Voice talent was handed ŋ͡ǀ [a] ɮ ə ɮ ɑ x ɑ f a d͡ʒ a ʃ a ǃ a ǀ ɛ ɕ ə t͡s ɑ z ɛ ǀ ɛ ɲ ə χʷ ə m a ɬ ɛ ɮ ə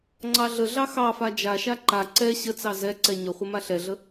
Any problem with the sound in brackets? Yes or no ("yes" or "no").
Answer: yes